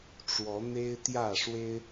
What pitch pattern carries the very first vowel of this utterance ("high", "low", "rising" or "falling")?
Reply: rising